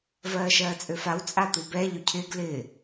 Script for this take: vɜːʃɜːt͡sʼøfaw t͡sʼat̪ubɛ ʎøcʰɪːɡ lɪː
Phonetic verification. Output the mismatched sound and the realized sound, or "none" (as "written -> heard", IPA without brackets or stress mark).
none